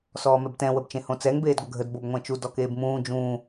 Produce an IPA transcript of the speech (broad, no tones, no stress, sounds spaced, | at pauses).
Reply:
s ɔː m ɛ b t ɛ̃ w ə b t͡ʃ ẽ h õ t͡s ɛ ŋ b eː d ɡʷ ə ɡʱ ə d b o b ŋʷ ɛ̃ t͡ʃ u d ɔ k eː b m ũː d͡ʒ ũː